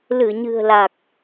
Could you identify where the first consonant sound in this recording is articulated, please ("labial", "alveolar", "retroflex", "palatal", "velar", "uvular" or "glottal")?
alveolar